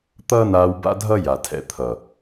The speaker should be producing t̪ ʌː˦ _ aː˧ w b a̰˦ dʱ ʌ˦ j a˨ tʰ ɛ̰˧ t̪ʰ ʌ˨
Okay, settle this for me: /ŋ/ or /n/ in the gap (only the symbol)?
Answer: n